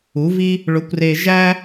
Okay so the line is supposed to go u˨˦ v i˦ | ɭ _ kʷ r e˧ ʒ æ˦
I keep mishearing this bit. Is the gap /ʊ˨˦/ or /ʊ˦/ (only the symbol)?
ʊ˨˦